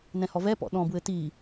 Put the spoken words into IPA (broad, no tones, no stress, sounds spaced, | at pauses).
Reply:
n ɛ̃ h ɔ v ɛ p ɔ̰ ɗ ɔ̃ b w ɘ t i